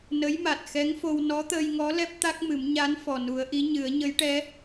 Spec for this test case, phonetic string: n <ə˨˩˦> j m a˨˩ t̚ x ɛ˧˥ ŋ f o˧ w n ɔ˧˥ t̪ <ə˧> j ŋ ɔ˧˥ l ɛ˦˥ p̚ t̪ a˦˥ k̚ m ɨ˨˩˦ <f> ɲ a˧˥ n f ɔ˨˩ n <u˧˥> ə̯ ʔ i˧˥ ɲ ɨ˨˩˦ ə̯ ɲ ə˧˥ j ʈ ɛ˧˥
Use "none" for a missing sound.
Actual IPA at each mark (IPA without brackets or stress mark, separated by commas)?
ə˧˥, əː˧, m, u˨˩˦